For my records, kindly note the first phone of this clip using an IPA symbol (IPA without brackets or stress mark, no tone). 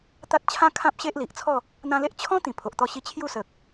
t̪